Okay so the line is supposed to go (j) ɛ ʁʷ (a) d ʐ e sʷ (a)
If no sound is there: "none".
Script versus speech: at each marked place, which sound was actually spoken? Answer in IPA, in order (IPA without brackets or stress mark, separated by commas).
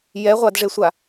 j, a, a